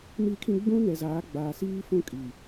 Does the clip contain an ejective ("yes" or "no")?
yes